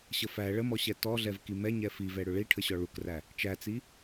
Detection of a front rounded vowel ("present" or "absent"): absent